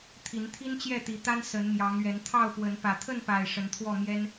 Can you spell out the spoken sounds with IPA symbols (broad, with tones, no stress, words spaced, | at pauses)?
t̪ʰi˨˦nt̪ʰi˦nt͡ɕjɛ˥˨ t̪i˨˦t̪a˦nsə˨˦n mjɑ˨˦ŋɥɛ˨˦n t̪ʰɑ˥˨ʊ̯pwə˨˦n pä˨˩t̪ʰə˥˨npa˨˩ɪ̯ ʂə˨˦nt̪ʰwɔ˥˨mjɛ˦n